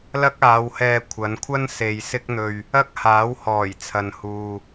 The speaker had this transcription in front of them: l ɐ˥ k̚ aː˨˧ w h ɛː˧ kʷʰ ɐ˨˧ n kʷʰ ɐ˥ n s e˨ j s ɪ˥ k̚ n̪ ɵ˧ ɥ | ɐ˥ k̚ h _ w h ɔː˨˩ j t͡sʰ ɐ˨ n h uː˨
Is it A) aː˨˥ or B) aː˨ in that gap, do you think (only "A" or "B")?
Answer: A